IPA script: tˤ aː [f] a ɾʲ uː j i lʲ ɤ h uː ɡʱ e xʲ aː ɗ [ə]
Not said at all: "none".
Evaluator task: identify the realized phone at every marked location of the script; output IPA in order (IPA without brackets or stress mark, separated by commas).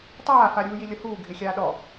f, ɔ